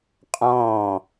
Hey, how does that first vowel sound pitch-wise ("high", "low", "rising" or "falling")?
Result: falling